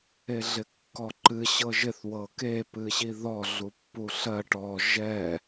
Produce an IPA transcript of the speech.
e ɮ ɪ kː ɔ ǃ ɨ ɕ ɤ ʒ ɪ θ w ɤ k e p ɨ ɕ i ð ɔ ɮ u pː u ɬ ɜ ʈ ɔ ʒ ɛ

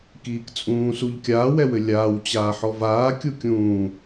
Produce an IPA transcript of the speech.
k iː k t͡sʼ ũː s u ʎ kʲ aː w ɛ w ɘ lʲ aː w t͡ɕ aː ħ ɔ v aː kʲ u kʲ ũː

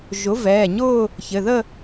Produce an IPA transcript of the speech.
ʒ ʊ˩˥ v ɛː˩˧˩ ɲ ʊː˥˧ | ç ɘ˩˧˩ ð ə˥˧

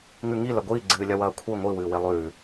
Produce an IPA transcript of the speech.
ŋ ʉ ŋ i l ɐ ɡʷ iː ɡ͡ǀ ɨː lʲ ɐ w ɐː kʷʰ i ŋʷ i w ɨː w e lˠ ʉː

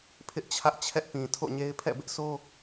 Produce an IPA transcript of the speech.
pʰ ɪ˦ ʔ t͡ɕʰ ä˦ ʔ t͡ɕʰ ɛ˦ ʔ p ĩ˨ tʰ o̰˦˨ ɲ e˦ ɪ̯ pʰ ɛ̰˦˨ b ɪ˦ ʔ sʰ o˦

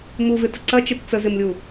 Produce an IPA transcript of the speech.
m u v ɪ t ə ǀ ɐ t͡ʃ e t t͡s ə z ɪ m lʲ u

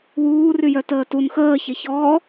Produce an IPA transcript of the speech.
w uː r y j œ t əː t u n x əː ç e ç ɔː

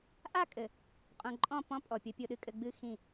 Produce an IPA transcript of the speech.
ʔ a˦˨ kʼ ɘ˨ | qʼ õ˨ ǃʼ ɔ̃˦˨ p ɔ̃˦ pʼ ɔ˨ pʲ ɔ˦ pʲ o˦ ɗ ɨ˦ kʼ ɘ˦ ɡ͡b ɨ˦ x ĩ˦˨

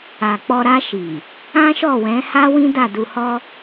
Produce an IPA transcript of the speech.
a˨ k͡p ɔ˧ ɾ a˧ ʃ i˨ | ã˦ ʃ ɔ˦˨ w ɛ̃˨˦ h a˦ w ĩ˦ d a˦˨ d u˧ h ɔ˦

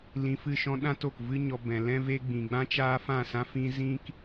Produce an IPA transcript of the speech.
l ĩ˧ f ɨ˦˨ ʃ ɔ̃˦ ɗ ã˦ t o˨ k v ɨ˦ ɲ ɔ˧ b ɛ̃˨ l ɛ̃˦ v e˦ ɡ͡b ĩ˨ ɡ͡b ã˦ t͡ʃ aː˦ f ã˦˨ s ã˦ f ĩ˦ z ĩ˦ k

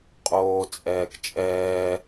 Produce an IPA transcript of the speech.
qʼ oː t͡sʼ ɛː k t͡ʃʼ ɛː

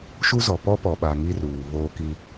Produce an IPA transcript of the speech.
ʃ u˦ z ɔ˨ p ɔ˦ p ɔ˨ ɓ a˨ ŋ i˦ r uː˨ β oː˦ k i˦

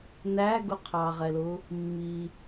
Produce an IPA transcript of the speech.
n æ ɡ ʊ qʰ ɑ ʁ ɛ l ʊ | mː i

